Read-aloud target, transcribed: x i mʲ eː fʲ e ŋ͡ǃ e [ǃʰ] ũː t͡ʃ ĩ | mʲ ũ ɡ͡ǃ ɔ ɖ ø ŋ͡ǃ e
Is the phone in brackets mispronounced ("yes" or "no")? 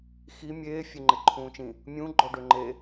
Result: no